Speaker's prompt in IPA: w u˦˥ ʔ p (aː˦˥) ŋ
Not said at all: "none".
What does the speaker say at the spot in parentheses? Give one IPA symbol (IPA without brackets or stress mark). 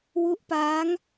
aː˦˥